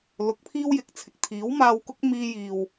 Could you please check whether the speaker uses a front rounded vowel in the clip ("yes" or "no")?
no